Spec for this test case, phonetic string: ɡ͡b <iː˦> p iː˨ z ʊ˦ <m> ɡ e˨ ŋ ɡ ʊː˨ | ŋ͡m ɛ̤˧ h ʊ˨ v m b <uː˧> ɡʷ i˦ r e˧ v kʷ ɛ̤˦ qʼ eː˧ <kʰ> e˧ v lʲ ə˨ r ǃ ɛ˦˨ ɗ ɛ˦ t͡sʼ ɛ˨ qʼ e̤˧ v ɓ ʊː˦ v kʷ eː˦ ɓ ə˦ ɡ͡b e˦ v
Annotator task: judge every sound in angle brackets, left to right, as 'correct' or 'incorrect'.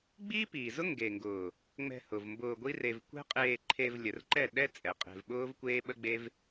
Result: correct, incorrect: ŋ, incorrect: ʊː˧, incorrect: ǃʰ

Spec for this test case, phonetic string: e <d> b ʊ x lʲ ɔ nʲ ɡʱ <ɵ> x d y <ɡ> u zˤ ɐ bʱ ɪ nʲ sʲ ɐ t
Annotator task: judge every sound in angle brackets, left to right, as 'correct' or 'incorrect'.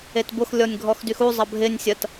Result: incorrect: t, incorrect: ɔ, incorrect: x

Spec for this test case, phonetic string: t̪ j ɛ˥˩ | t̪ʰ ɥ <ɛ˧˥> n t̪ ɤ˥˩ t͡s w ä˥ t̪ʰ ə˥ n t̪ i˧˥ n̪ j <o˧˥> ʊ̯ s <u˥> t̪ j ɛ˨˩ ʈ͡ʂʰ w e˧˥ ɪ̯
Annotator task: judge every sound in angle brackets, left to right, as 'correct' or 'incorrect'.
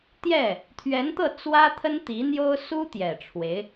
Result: correct, incorrect: o˥, correct

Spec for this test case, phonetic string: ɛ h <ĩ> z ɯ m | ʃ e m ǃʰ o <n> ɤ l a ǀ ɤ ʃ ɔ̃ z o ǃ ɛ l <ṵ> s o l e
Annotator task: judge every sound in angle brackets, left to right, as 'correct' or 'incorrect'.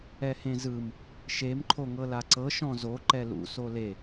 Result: incorrect: ẽ, incorrect: ŋ, correct

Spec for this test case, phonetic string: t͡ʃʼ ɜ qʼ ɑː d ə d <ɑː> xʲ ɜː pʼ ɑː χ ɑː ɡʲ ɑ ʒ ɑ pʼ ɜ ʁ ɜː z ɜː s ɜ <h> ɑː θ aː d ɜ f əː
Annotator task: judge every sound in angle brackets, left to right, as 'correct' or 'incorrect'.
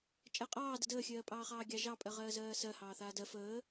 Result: incorrect: əː, correct

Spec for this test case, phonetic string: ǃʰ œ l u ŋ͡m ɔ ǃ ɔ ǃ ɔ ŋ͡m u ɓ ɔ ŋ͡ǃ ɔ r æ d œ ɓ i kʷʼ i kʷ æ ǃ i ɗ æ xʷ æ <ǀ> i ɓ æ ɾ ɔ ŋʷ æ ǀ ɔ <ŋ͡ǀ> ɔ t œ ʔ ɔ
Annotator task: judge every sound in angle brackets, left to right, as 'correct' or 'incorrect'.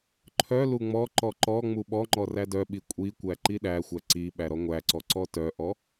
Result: correct, incorrect: ǀ

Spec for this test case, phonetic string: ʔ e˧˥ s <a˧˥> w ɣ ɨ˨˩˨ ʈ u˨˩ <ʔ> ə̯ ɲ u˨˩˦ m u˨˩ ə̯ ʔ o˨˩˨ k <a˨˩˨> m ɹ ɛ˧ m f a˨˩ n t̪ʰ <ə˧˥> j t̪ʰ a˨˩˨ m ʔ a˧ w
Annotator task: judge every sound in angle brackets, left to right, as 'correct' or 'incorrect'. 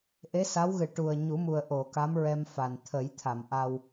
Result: correct, incorrect: none, incorrect: a˧˥, incorrect: ə˨˩˦

